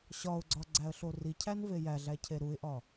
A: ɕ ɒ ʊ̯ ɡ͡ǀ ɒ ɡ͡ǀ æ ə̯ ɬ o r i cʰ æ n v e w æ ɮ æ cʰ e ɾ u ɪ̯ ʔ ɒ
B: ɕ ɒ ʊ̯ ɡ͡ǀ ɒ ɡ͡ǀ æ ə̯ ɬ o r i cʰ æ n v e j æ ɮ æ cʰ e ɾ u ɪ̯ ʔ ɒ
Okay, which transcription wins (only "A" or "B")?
B